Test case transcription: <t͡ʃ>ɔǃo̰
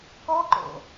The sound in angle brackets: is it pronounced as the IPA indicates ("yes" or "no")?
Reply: no